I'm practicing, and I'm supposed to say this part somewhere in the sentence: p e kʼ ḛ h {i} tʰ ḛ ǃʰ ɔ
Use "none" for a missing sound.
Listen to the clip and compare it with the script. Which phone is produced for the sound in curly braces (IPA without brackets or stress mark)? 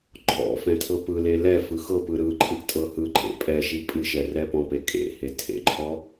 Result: e